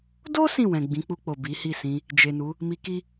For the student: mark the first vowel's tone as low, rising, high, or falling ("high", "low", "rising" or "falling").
high